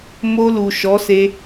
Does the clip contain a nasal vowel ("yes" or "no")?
no